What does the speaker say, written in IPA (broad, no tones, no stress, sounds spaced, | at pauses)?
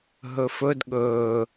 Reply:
ɦ ɵ f ɵ d ɠ ɵː